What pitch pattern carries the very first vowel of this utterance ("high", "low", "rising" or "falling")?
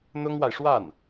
high